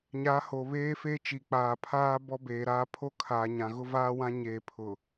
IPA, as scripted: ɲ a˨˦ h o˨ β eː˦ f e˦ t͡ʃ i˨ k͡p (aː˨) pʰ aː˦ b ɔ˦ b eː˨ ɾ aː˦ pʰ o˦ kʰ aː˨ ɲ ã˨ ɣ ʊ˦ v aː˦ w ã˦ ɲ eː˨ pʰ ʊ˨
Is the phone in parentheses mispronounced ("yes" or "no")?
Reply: no